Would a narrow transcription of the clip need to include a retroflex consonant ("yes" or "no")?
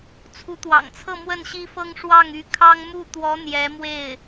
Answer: yes